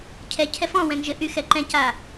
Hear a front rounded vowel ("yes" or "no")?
yes